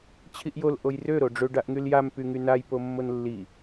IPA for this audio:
t͡ɕʰ i ʔ j o l ʔ o j r ø ɾ o ɖ͡ʐ ø ɖ a ʔ ŋ y l j a m p y ŋ y n a j p o mː o n lː i

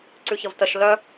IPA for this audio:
ǀ ʉ ç ə v t ə ʃ l œ

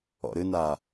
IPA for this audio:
ɔ̰ ɾ ɨ n a

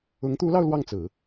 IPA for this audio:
ʊ˧˥ ŋ t̪ u˧˥ l ɑ˧ ʊ̯ l w ɑ˥˩ ŋ t͡s ɹ̩˨˩˦

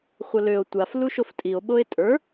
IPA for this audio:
χʷ ə l ø o̯ tʷ a f l u ʃ o f tʼ i o̯ ɓ o e̯ tʼ ə˞

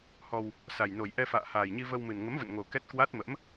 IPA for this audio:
h ɔ˧ w | s a˨˩ j n o˨˩ j ʔ ɛ˧ f a̰ː˧˨ h aː˨˩ j ɲ i˧ v ə˧ w m ɨ˨˩ n ŋ ə˨˦ m v ə̰˧˨ n ŋ o˨˩ k ɛ˦˥ t̚ k w a˦˥ t̚ m ə̰˧˥ m

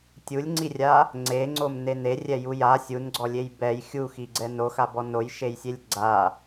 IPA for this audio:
tʲ u lʲ ŋ͡ǀ i rʲ a | ŋ͡ǀ e ŋ͡ǀ o m n e n e rʲ ɛ j u j a sʲ u n ɡ͡ǀ ɔ lʲ e j b ɛ j xʲ u x i ɡ͡ǀ ɛ n o x a b ɔ n o j ʃ e j sʲ e lʲ ɡ͡ǀ a

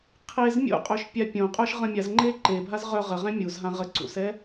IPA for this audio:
qʰ e z mʲ o̰ qʼ ø ʃ pʲ a pʲ õ qʼ œ ʃ ʁ ə̃ mʲ a z ŋ͡ǃ e ǃ e bʱ a z ʁ œ ʁ ə ʁ ɛ̃ mʲ u z ɦ ã ʁ ə ǀ ṵ s ɛ

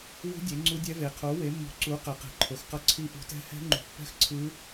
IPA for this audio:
w ṳ˦˥ dʲ e˨˥ ŋ͡ǀ u˦˥ dʲ ɛ˦˥ v e˨˥ qʰ o˨˥ w e˨˥ mː ṳ˨˥ ǀ u˨˥ q ɛ˨˥ q ɛ̤˨˥ ǃʰ o˨˥ x q ʌ˦˥ ǀʰ i˦˥ ʔ ṳ˨˥ t ɛ̤˦˥ h ɛ̤˦˥ ŋ͡ǃ ṳ˨˥ pː ɛ̤˦˥ x ǀʰ ɯ˦˥

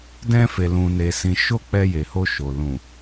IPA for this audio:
d ɛ̃˧ f e˨ l ũ˨ n e˨ s ĩ˨ ʃ o˧ k͡p ɛ˧ j e˨ h o˧ ʃ o˨ l ũ˨

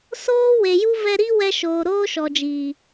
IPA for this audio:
s oː˦ w e˨ j u˦ v ɛ˧ ɾ i˦ w ɛ˧ ʃ oː˨ ɾ oː˦ ʃ ɔ˨ d͡ʒ iː˨

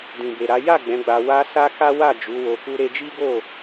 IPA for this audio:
d ĩ˨ b e˨ ɾ a˨˦ j a˦˨ ɡ͡b ɛ̃˨˦ ɡ͡b a˧ w a˦ s a˦ k a˦ w a˦˨ d͡ʒ u˨˦ w o˧ k u˦ ɾ e˧ d͡ʒ i˦ ɡ o˦˨

